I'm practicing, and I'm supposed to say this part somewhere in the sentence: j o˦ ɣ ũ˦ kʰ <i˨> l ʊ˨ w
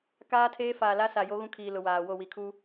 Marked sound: incorrect: iː˨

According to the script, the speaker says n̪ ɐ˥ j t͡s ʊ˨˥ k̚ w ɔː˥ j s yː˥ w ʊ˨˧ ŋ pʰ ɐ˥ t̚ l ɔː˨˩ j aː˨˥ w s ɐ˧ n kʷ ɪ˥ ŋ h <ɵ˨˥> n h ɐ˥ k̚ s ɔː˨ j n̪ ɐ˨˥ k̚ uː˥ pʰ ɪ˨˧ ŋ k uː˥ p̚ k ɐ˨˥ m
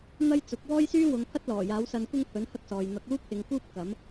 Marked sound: correct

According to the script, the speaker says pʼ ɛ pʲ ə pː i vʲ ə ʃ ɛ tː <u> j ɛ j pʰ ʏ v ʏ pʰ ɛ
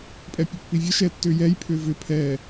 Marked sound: incorrect: ʏ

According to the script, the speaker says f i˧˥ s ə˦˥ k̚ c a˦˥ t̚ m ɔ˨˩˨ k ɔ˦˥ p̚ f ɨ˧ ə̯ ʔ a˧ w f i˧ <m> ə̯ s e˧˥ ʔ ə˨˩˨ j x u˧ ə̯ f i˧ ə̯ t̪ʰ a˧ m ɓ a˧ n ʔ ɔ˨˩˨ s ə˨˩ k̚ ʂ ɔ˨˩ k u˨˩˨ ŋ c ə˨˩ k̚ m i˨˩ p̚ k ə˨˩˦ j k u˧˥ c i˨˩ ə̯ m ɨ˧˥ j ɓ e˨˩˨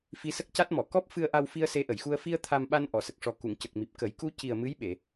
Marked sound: incorrect: none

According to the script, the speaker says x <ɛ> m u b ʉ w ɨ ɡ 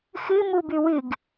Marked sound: incorrect: ɨ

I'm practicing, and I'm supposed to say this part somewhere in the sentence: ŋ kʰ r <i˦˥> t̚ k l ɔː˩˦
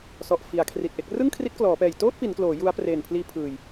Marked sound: correct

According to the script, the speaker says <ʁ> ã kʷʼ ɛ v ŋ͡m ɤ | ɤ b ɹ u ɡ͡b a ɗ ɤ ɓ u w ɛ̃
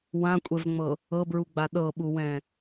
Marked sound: incorrect: w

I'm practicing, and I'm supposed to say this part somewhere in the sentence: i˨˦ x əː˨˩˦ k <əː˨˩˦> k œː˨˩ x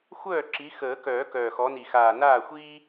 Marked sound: incorrect: œː˨˩˦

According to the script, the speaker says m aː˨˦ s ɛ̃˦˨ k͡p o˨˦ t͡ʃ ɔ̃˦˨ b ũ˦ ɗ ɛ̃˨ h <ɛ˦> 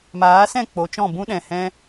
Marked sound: incorrect: ɛ̃˦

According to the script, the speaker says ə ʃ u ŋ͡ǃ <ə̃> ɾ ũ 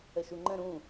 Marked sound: correct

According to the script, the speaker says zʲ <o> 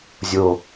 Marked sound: correct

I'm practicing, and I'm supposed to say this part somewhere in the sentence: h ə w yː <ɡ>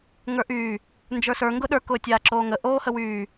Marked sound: incorrect: none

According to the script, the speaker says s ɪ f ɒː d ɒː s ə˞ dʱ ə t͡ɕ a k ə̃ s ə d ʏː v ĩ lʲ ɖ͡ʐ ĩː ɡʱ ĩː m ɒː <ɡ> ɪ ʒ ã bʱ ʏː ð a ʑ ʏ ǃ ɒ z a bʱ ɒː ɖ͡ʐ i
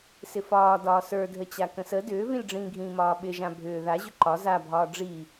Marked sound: incorrect: ɓ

